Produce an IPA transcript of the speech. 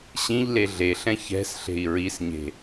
ɕĩʎ leɮeɬɛ̃ çɛ̤s ɬe̤i̯ɹisɲe̤

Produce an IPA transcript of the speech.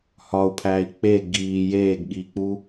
hɒu̯pʰæːi̯ k͡pe ɡiː jeːɡɠiːk͡pu

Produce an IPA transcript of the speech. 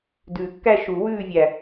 dʉː˨˩˦kːæ˥˧ ʃu˨˩˦ wʉː˥˧vʲæ˨˩

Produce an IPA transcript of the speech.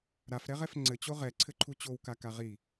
ɾafɾɛʁɛf ŋ͡ǀɘt͡ɕo ʁɛǀʰɘǃʰu t͡ɕowkaka ʁi

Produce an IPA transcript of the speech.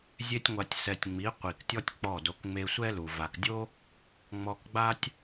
zʲe˧tʲŋʷa˨tʲsɛ˨tʲ ŋ͡mi˨˦qʷi˨ktʲɔ˦tʲ k͡pɔ˦˨do˧k ŋ͡me˧sʷɛ˦lu˨ va˨kdʲo˦ | ŋ͡mɔ˧kɡ͡ba˦tʲ

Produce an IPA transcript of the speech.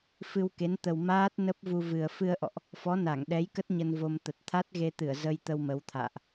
fɨ˧wke˨˦nt̪ə˨˩w maː˦˥t̚ nə˦˥p̚vu˧vɨ˨˩ə̯ fɨ˧ə̯ʔɔ̰˧˨ʔ | fɔ˨˦na˧˩ŋɗɛ˨˦jkə˦˥t̚ ɲə˧nvo˧mt̪ə˨˩t̚ t̪ʰa˦˥t̚ɣe˧t̪ɨ˧˩ə̯ zə˧jt̪ə˧w mə˨˦wt̪ʰa̰ː˧˨ʔ

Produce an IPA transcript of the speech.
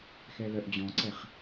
xɛlœʔd͡ʑɔ̃ǀɛχ

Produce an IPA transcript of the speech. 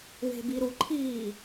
we̤biɾuǃʰiː

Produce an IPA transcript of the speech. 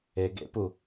e ɡḛpu

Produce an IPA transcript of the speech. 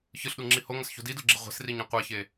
çɯɬɗuŋ͡ǁi hoŋʌsço̤ didoɡ͡ǁe ʁʷe̤sriɲĩ qʷaçe

